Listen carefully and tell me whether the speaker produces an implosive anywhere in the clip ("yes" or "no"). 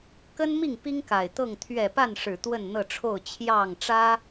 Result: no